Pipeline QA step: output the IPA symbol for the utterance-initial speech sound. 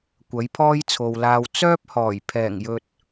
kʷ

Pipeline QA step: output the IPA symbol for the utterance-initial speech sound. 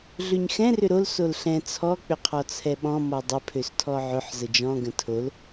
ɮ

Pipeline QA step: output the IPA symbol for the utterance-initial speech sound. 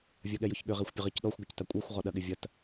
vʲ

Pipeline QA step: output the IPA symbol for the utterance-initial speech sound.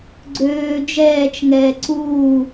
ɡ͡ǀ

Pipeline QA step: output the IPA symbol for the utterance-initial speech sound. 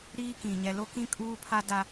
ɾ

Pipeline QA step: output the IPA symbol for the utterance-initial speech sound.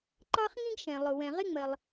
ǃ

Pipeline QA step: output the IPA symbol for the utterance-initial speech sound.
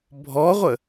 bʱ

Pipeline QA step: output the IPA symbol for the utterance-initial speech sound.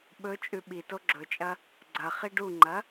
ɓ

